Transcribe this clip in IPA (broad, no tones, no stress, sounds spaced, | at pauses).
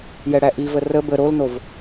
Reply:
j ɛ ɽ æ ʔ i v ə r ə b ə ɾ o l n o v